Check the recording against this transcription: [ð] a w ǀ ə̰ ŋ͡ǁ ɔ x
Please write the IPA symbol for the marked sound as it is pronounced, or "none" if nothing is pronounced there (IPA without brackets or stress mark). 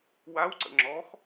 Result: w